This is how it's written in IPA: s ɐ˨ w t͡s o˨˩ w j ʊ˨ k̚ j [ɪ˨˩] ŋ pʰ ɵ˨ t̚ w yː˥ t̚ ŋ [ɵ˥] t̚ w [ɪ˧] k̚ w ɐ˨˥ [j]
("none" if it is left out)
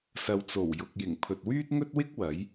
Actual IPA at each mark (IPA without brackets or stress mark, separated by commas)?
ɪ˨˩, ɵ˥, ɪ˥, j